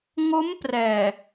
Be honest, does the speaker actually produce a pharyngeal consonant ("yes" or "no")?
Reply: no